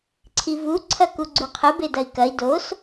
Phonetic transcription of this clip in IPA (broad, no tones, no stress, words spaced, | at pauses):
ǀʰivu ǀʰɐkuɡ͡ǀuqʰɨ bedɐi̯kɐi̯ dos